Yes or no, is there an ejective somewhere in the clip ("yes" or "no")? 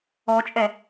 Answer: yes